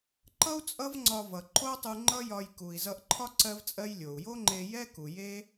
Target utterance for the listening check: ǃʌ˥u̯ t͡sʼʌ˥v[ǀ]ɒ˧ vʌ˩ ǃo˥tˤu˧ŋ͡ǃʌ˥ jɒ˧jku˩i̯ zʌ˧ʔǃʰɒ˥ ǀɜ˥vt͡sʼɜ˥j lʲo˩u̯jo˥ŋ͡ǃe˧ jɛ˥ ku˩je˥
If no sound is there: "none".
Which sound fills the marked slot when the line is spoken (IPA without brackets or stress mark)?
ŋ͡ǀ